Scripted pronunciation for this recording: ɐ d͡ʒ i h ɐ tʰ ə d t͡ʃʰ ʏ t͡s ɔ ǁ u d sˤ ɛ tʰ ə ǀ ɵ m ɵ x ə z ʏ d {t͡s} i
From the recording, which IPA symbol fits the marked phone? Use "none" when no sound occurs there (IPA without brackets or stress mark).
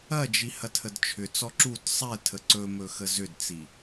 t͡s